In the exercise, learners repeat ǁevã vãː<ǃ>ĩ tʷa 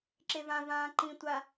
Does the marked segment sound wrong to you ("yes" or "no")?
no